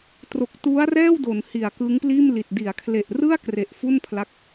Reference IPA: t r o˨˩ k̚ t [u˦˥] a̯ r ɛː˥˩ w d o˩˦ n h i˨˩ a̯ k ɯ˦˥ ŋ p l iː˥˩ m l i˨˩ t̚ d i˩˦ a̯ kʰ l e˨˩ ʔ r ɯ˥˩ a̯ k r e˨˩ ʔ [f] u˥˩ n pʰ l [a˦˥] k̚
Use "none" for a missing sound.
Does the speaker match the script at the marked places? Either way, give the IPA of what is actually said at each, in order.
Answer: u˦˥, f, a˦˥

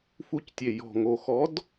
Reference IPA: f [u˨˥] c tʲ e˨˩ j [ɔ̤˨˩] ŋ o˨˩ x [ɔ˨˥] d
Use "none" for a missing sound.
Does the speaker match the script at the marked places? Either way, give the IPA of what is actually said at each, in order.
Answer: u˨˥, ɔ̤˨˩, ɔ˨˥

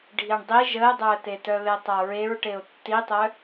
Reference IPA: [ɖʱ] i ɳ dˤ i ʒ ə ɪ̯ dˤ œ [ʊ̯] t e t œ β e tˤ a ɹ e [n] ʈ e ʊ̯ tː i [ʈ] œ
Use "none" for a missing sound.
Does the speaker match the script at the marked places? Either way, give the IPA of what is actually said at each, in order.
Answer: ɖʱ, ə̯, ɹ, tˤ

